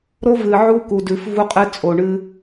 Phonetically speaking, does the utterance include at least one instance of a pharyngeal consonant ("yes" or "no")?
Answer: yes